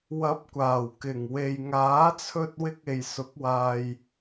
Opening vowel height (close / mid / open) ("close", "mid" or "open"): open